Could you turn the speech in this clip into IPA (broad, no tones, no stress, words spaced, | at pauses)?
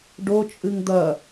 ɖot͡ʃʼɨŋ d̪ɐ